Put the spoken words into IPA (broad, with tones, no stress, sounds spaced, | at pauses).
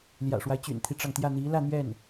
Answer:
l j ä̰˨˩ ʂ w a˦ ɪ̯ t͡ɕ y̰˨˩ n t̪ʰ i˦ ʈ͡ʂ ɑ˩ ŋ t̪ j ä˥˩ n̪ i˧˥ l ä˥˧ n̪ ɥ ɛ˥˩ n